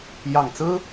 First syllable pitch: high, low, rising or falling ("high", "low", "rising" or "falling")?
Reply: low